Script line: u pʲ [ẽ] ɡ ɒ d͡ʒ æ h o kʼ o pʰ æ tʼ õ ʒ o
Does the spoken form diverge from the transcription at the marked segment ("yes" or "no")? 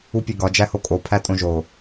yes